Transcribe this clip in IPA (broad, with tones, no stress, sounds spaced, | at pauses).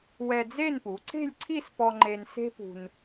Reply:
w ɛ˧ d͡z e˥˧ n p u˩˧ ǀ e̤˥˧ lʲ ǀʰ i˥˧ s p ɔ˧ ŋ͡ǃ e˧ n s e̤˥ p ṳ˧ n